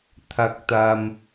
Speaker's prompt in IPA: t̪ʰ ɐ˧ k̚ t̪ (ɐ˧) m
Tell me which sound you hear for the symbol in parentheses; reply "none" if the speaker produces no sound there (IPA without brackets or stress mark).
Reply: ɐ˧